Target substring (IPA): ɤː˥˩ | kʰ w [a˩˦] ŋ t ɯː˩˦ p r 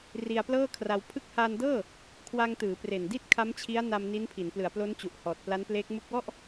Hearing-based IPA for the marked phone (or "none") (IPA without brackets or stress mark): a˧